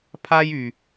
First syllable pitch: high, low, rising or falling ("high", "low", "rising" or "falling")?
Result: high